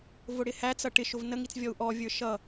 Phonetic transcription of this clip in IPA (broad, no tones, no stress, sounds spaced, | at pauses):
v ʊ ɽ ɪ h æ t͡s ʌ ʈ ɪ ʃ ʊ v n ə ŋ i t͡s vʲ ɔ u̯ ʔ ɔ vʲ ə˞ ʃ ʌ